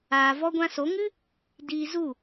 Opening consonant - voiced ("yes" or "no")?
yes